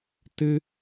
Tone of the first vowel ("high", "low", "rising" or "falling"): high